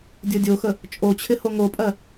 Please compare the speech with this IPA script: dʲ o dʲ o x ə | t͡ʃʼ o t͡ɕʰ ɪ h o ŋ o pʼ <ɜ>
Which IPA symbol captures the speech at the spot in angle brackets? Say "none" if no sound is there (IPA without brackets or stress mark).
ɜ